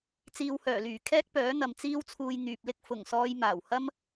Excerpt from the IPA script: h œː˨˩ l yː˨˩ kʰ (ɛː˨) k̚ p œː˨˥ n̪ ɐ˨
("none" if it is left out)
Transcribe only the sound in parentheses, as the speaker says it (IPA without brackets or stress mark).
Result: ɛː˥